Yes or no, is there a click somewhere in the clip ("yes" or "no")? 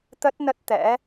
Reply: no